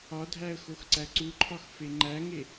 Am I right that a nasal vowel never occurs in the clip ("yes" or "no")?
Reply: yes